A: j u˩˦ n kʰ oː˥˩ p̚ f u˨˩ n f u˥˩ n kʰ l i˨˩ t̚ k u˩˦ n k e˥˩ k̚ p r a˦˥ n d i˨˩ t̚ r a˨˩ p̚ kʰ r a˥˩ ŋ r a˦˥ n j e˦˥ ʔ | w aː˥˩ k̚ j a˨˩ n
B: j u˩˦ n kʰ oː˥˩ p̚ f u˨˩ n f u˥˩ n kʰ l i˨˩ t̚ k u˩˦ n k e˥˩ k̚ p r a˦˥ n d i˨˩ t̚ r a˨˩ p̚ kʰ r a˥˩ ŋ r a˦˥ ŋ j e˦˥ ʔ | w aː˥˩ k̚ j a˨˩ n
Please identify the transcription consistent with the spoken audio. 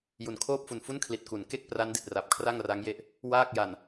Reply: B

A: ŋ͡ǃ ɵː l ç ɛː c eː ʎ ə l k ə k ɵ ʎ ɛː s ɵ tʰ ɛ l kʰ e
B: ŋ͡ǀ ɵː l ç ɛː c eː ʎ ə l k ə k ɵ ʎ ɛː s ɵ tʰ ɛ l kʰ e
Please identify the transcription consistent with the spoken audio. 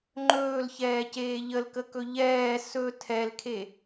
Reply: A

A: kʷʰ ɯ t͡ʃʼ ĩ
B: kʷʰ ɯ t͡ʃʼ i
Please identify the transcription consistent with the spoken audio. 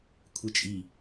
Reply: B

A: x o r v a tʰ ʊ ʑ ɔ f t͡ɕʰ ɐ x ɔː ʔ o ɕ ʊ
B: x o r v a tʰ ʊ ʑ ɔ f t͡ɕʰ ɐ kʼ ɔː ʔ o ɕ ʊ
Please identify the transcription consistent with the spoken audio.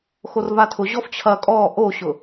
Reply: B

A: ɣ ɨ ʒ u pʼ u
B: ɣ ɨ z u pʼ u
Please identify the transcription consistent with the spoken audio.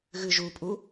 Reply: A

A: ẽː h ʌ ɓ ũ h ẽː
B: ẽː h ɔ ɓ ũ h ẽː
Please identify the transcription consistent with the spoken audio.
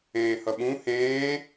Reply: A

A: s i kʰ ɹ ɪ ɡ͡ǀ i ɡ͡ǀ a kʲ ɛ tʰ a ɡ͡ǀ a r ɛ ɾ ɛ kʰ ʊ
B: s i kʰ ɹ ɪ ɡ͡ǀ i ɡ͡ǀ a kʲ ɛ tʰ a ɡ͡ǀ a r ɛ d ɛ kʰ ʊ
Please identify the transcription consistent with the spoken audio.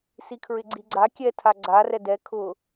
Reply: B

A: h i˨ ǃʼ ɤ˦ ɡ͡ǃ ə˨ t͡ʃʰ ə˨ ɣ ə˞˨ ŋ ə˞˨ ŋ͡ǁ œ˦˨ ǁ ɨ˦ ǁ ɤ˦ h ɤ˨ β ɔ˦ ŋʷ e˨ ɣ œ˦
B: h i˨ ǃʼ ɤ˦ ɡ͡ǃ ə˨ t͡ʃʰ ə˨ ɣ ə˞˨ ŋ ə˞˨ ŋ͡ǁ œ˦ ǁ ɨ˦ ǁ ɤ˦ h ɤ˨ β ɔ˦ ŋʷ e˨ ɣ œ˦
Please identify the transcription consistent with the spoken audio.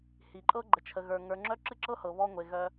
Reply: B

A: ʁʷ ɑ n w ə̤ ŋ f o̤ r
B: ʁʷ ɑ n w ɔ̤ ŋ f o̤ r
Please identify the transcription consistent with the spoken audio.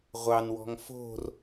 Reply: B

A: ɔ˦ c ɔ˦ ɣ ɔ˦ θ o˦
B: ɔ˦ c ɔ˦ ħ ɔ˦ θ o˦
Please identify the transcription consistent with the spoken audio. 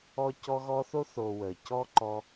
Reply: A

